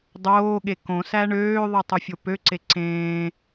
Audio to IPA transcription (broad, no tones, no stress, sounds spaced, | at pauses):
dˤ oː ɠ e k õ s æ ɳ øː ðˤ ɯ tˤ u fʲ o p ø ǀ e ǀ ẽː